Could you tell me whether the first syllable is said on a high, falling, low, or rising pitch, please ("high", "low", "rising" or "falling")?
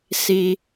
low